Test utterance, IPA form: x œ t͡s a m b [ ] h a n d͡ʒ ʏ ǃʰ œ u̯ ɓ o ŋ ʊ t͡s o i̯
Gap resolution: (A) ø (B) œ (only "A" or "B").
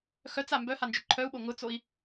B